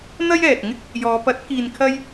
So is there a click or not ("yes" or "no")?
no